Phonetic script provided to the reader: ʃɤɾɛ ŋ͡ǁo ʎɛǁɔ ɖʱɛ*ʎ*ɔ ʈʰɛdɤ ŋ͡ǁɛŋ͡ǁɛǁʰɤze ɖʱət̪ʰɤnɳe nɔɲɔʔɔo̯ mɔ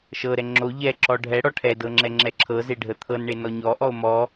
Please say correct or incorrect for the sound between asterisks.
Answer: incorrect